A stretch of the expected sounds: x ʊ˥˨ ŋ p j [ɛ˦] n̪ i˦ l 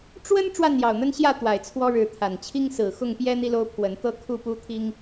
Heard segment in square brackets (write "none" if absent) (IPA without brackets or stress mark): ɛ˦